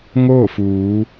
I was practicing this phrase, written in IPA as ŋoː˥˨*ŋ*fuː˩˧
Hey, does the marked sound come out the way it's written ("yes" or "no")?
no